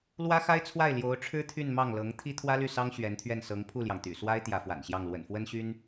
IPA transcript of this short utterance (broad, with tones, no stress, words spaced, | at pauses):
lwä˥xa˥ɪ̯t͡sʰwa˥˩ɪ̯ ljo˧˥ʊ̯ʈ͡ʂʰɻ̩˥ t̪ʰy˥˧nmɑ˥˩ŋlɤ˧˥ŋ t̪ʰi˥t̪ʰwä˥ly˥˩sɑ˥ŋ ɕɥɛ˧˥nt̪ʰɥɛ˥˩n sɤ˧˥ŋ pʰu˥˩ljɑ˩ŋt̪y̰˨˩swa˥ɪ̯ t̪jä˧˥fwa̰˨˩nɕjɑ˥˩ŋ lwə̰˨˩nfwə˥nɕy˥n